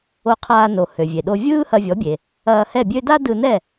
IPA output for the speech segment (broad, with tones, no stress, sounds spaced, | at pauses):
o˧ qʰ aː˧ n o˩ h ø˩ vʲ e˩ ɗ o˧ vʲ ɯː˥ h ɐ˧ vʲ ɔ˩˥ bʲ e˩ | ɐː˧ h ɛ˥˩ bʲ ø˥ d a˥ d ɯ˧ n ɛ˥˩